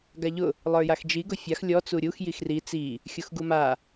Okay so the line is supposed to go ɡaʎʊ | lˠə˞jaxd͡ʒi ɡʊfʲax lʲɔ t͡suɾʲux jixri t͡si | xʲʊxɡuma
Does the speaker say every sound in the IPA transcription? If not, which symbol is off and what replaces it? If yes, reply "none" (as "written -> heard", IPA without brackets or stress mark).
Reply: none